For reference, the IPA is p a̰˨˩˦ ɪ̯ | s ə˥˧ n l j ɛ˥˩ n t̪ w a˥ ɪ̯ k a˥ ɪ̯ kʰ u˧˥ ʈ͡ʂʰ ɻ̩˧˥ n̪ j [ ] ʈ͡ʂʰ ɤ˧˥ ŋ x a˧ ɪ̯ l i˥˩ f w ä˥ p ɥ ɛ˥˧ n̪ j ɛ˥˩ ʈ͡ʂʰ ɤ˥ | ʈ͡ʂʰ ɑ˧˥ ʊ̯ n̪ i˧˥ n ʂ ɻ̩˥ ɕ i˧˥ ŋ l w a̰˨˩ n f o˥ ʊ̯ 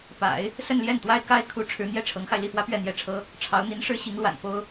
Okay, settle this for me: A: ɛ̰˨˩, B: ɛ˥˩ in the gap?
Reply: B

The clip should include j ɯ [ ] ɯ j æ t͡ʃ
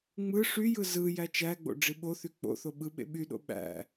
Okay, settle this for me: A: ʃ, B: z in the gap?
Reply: B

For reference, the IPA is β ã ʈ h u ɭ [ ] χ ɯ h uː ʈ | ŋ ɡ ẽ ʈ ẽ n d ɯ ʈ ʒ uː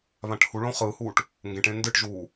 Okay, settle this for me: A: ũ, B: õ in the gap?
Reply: B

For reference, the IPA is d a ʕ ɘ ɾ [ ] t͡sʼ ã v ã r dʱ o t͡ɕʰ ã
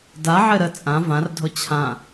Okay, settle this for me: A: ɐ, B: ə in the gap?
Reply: B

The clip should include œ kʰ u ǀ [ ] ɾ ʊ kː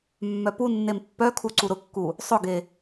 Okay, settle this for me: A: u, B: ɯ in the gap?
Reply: A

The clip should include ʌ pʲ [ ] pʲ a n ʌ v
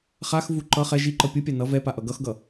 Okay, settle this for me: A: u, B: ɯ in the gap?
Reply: B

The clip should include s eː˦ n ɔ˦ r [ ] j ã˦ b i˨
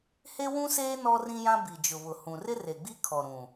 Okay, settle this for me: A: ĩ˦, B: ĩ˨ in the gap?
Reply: A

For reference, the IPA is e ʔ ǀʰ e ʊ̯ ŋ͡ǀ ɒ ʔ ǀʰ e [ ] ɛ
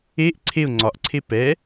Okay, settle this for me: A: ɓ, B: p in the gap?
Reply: B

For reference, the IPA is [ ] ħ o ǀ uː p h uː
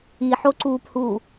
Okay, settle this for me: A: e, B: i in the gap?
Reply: B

